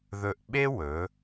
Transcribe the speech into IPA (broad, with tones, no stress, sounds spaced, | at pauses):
ð ɵ˧ ʔ ɓ e˥ w ɵ˩˧